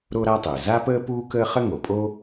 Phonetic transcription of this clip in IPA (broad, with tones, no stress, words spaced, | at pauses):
ɾo˥ɾa˥ tˤəː˩za˥pəː˥ puː˥kəː˥ χə˥ŋo˩pʼo˥